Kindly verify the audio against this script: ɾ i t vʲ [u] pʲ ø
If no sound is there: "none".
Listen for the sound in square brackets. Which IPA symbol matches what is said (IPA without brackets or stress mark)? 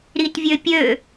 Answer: ø